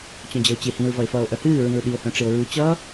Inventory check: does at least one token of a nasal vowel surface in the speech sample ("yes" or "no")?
yes